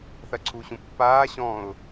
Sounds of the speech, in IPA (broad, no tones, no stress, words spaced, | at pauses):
θɐǀʰuɕũpːaː ɕɔ̃ʊ̯